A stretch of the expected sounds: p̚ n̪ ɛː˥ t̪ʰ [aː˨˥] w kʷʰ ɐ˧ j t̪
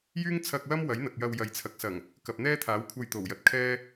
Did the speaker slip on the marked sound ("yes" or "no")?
no